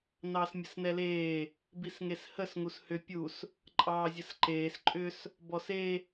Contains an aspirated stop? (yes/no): no